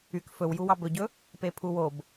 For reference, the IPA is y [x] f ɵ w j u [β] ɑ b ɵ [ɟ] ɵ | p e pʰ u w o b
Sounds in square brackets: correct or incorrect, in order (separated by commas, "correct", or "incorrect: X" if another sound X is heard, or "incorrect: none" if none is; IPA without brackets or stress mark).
incorrect: k, incorrect: w, correct